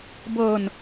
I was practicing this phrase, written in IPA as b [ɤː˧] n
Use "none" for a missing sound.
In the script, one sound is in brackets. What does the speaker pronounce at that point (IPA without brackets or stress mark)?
ɤː˧